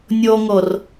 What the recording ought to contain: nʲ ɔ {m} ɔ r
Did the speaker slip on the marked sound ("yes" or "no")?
yes